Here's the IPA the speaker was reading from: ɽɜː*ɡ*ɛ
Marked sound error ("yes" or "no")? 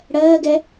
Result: no